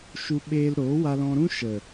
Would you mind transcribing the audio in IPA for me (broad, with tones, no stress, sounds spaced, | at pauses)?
ʃ u˧ ɓ eː˧ l ɾ oː˨˦ w a˧ l ɔ̃˧ ɾ ũ˦ ʃ ə˨